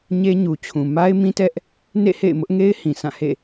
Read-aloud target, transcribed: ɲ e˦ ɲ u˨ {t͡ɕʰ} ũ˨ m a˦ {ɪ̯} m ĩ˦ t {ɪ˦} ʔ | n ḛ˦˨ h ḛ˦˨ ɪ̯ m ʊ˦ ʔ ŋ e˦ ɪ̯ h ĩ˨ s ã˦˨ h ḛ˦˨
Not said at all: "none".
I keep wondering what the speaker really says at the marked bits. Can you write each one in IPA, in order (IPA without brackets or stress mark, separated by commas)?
t͡ɕʰ, ɪ̯, ɛ˦